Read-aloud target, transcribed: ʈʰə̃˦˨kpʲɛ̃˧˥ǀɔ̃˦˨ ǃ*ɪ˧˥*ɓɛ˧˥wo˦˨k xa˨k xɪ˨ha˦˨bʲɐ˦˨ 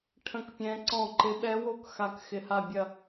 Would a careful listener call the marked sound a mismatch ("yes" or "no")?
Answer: no